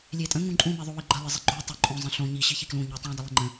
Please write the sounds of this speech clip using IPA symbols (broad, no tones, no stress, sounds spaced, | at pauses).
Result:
lʲ e tʼ ə̃ ŋ ũ ǃʼ ũ m e ðˤ o w i ɡ͡ǃ ə lˠ ɪ zˤ ɪ ɡ͡ǃ u tˤ o ǃʼ õ zˤ ə̃ ɬ õ ɲ i ɕ i ç i k l ũ ɲ u tˤ ũ dˤ ɪ lˠ ɪ ŋ͡ǃ ə̃